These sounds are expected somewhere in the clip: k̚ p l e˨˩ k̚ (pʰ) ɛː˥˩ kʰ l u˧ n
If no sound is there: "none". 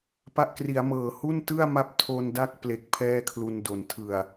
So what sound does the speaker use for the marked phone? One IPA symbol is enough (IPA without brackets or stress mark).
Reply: pʰ